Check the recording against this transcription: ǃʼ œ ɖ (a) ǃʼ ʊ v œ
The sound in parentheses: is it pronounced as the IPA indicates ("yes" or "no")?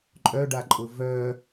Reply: yes